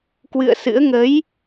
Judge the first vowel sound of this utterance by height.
high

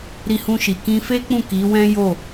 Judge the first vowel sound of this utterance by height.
high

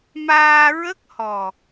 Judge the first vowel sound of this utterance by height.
low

